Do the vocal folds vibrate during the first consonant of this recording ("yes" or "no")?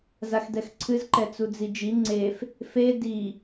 yes